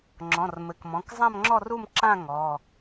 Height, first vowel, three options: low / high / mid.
mid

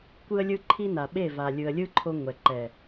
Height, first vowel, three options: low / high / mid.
high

